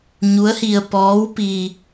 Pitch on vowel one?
rising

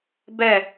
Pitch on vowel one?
falling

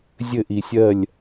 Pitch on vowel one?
falling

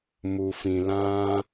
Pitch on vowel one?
low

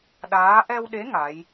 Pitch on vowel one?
rising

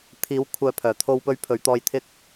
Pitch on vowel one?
rising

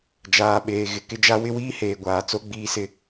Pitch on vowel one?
low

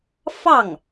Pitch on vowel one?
falling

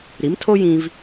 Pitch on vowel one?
rising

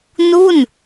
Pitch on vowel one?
falling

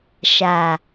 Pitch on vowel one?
low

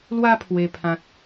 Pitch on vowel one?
high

